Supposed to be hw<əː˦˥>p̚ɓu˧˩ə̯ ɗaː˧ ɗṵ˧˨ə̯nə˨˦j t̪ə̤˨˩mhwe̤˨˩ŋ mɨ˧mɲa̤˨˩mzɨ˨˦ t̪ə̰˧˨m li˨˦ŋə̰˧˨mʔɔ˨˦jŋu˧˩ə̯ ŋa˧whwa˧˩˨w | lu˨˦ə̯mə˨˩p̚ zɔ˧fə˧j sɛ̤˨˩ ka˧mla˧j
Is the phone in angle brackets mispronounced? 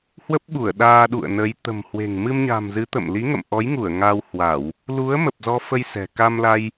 yes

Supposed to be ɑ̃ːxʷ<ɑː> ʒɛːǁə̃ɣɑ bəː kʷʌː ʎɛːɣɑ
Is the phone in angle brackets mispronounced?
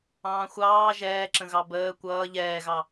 no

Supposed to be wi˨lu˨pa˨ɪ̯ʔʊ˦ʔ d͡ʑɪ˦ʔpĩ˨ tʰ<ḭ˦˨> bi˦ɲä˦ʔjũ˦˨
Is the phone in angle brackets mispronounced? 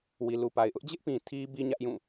yes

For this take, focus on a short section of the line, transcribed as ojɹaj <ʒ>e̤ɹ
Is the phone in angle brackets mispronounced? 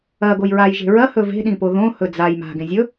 no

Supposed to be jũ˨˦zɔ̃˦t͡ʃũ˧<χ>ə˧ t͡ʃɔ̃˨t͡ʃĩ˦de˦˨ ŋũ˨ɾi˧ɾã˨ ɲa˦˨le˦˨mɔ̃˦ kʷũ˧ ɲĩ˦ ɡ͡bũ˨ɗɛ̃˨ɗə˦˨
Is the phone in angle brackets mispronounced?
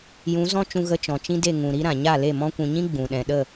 yes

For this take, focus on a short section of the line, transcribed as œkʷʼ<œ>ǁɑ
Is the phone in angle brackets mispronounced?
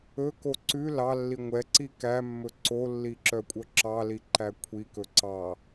no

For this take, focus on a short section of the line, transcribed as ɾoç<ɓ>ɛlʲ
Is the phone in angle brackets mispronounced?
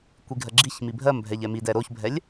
yes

